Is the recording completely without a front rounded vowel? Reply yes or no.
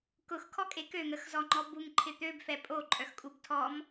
no